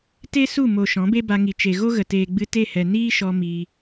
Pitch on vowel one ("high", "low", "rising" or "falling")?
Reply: high